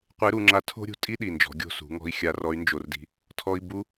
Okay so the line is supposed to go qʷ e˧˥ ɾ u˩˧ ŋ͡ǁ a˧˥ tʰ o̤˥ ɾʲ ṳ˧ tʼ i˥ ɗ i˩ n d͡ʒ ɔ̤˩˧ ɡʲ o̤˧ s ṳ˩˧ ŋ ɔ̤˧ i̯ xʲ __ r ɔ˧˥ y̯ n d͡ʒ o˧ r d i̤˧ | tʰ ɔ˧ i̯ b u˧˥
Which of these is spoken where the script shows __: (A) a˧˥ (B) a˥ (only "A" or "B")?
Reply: A